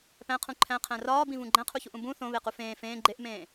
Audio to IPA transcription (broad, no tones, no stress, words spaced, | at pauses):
pæ̃qʰũ ǃʰæ̃qʰæ̃ rɒːbĩvũ ɡ͡ǃæ̃qʰuçuʔũ bũ θõβequ fẽː fẽː ɡ͡ǃeʔmẽː